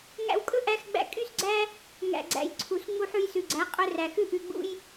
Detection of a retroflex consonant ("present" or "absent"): absent